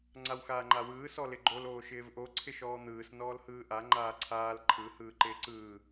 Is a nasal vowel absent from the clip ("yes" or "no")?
yes